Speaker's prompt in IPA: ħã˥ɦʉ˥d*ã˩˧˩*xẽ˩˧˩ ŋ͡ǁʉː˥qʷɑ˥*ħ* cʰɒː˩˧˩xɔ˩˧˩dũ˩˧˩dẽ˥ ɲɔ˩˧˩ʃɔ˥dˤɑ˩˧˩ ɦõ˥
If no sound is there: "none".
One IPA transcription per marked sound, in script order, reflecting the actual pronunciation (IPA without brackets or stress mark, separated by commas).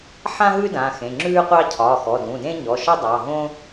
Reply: ã˩˧˩, none